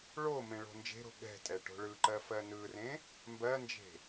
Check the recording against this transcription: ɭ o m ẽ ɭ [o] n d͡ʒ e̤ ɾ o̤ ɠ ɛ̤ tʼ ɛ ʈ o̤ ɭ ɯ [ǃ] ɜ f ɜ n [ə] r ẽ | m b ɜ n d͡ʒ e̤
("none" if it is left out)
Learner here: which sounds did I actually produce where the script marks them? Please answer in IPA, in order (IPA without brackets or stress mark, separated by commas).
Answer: o̤, ǃ, ɯ